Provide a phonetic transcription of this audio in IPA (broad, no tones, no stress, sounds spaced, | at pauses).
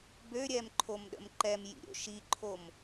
b ø ɾʲ ɛ m ǃʰ o m ɗ ə̰ m ǃ ɛ m j ḭ ɾʲ o̰ ʃ i ǃʰ o m